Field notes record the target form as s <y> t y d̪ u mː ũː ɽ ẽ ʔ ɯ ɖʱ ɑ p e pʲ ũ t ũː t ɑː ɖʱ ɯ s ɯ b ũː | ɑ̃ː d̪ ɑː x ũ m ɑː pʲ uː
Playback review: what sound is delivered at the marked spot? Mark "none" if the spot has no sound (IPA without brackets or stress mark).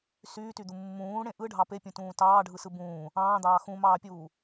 yː